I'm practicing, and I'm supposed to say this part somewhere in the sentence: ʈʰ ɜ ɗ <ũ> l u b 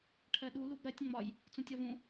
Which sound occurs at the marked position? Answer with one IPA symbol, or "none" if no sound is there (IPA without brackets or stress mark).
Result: u